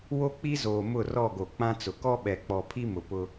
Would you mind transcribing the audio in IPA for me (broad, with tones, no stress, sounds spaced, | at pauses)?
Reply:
w o˦ k͡p i˦ z oː˨ m ʊ˦˨ r ɔ˦˨ ɡ o˨ k͡p ã˦ t͡s ʊ˨ k ɔ˦ ɓ ɛ˨ k͡p ɔ˨ pʰ i˦ m ʊ˨ p ʊ˦